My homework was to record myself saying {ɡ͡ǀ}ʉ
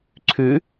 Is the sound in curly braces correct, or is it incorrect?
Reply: incorrect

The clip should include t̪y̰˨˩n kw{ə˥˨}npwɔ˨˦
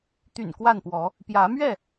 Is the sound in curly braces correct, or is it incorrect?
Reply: incorrect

